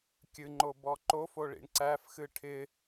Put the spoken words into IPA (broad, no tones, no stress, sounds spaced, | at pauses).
kʲ ɨ ŋ͡ǃ o b ɔ ǃ o f o ɭ ḭ ɳ ǀ æ f x ɨ ʈʰ ɪ